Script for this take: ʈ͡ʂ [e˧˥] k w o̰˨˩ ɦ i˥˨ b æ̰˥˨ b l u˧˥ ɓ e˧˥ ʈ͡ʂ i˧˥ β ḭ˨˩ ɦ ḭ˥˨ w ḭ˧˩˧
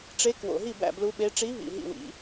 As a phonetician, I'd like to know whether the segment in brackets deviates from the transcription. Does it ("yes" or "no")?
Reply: no